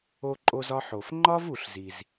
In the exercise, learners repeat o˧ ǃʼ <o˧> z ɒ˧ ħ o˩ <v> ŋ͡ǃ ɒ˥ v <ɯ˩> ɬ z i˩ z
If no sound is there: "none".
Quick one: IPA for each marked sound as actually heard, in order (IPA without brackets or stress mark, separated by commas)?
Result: o˧, f, u˩